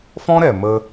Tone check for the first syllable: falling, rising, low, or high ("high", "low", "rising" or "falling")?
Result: high